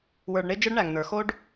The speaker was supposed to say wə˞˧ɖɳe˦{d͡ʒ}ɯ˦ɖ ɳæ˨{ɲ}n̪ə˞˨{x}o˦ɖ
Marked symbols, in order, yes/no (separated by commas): yes, no, yes